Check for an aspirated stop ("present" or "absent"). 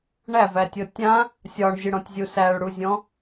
absent